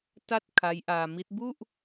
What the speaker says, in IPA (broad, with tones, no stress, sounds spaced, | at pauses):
t a˥˩ t̚ kʰ a˦˥ j ʔ aː˧ m i˦˥ t̚ b u˥˩ ʔ